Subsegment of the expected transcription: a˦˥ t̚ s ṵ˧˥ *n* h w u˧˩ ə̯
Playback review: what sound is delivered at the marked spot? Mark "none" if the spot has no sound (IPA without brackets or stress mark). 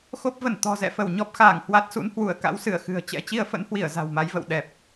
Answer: n